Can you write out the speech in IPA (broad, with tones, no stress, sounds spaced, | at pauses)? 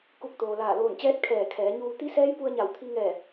k u˧˩ k̚ t̪ oː˩ l aː˧˩ l oː˧˩ n t͡ɕ ɛː˧˥ t̚ kʰ ɛː˧˩ kʰ ɛː˩˧ ɲ uː˧ t̪ i˧˥ s ɛː˧˥ j p u˧ ə̯ ɲ a˧˩ w t̪ʰ i˧ ŋ ɛː˧˩